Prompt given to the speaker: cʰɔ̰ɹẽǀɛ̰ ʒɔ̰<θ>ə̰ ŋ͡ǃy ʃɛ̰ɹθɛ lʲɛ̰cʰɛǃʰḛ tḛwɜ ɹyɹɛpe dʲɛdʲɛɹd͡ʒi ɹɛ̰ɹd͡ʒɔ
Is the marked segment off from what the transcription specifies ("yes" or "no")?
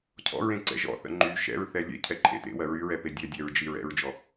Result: no